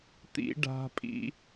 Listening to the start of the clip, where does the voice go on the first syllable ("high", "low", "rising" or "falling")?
high